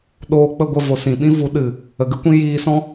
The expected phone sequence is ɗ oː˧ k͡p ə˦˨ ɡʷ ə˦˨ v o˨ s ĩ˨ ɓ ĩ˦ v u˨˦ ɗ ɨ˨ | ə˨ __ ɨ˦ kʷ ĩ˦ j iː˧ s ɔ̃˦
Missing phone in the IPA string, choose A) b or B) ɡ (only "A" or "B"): B